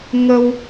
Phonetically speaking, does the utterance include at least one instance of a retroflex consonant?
no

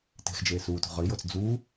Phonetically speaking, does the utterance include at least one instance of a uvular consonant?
yes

